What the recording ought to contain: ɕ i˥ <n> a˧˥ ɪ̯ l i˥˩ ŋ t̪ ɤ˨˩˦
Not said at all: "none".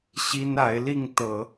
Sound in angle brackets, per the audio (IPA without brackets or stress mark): n